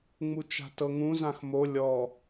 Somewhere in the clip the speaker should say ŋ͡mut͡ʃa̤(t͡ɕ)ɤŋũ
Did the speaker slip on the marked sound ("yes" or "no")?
yes